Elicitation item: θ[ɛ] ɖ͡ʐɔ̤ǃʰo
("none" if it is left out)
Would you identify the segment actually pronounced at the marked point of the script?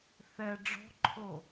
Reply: ɛ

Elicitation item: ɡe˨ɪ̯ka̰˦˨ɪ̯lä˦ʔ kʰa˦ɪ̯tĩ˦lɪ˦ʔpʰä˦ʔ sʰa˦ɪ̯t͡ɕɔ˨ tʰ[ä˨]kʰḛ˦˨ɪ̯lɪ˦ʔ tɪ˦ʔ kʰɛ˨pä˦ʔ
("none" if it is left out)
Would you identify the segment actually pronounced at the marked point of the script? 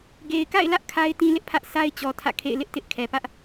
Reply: ä̰˦˨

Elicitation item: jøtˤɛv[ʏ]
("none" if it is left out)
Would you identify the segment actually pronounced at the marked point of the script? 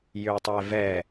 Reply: ɛ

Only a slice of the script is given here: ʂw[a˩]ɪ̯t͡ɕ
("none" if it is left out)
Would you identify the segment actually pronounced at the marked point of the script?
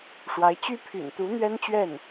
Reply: a˧˥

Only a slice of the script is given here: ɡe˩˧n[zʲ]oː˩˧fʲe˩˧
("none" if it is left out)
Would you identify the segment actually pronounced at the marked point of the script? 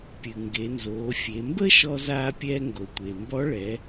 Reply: z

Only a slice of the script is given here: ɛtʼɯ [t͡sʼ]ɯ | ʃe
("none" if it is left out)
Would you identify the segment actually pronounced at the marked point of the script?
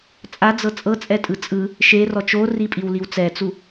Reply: t͡sʼ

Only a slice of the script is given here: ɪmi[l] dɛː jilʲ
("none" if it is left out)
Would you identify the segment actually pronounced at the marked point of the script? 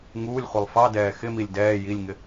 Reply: lʲ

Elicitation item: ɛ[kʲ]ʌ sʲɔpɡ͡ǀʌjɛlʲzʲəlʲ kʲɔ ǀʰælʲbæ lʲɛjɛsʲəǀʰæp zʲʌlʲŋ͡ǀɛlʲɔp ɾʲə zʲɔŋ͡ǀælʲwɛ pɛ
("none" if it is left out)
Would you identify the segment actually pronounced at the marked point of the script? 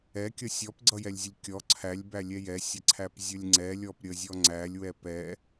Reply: kʲ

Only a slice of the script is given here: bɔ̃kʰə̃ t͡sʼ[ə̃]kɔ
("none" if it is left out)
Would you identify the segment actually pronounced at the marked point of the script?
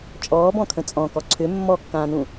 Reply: ɔ̃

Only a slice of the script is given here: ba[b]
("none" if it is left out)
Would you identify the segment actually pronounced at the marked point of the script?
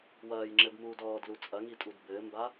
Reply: none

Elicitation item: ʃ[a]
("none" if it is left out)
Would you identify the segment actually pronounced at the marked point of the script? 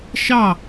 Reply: ɑ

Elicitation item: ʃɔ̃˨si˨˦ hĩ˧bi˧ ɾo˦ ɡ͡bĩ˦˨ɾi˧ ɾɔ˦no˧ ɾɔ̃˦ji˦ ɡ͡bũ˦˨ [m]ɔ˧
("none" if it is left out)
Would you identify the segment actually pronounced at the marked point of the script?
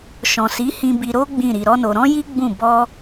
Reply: b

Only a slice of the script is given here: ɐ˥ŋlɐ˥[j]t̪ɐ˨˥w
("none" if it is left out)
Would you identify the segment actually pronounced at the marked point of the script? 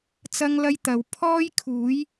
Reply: j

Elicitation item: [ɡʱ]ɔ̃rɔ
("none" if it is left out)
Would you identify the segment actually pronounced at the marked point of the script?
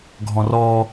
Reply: ɡʱ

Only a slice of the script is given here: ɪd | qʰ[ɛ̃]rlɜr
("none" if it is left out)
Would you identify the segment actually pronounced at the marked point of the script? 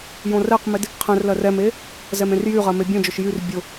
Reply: ɛ̃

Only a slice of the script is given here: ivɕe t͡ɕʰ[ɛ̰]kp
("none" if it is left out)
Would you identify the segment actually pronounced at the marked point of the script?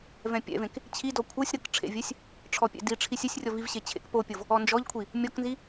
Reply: ḛ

